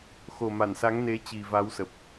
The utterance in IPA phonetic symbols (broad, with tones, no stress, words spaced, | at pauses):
xo˨˩ma˧˩nsa˨˦ŋne˨˦ t͡ɕi˨˩va˨˦wsə˨˩p̚